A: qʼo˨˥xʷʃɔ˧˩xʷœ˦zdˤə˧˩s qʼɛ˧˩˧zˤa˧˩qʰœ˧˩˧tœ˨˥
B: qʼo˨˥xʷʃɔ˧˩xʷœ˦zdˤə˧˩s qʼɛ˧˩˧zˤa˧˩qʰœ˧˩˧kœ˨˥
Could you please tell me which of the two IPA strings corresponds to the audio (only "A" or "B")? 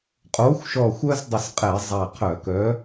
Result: B